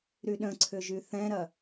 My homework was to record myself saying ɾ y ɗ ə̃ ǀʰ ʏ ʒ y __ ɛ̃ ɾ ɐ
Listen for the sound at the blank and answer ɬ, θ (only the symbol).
θ